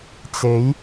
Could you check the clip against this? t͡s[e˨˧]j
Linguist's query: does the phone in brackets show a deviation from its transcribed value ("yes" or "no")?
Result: no